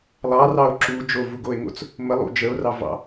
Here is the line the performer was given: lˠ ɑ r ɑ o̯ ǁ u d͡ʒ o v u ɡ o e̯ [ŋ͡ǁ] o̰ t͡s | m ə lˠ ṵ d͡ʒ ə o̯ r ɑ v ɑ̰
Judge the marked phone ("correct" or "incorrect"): incorrect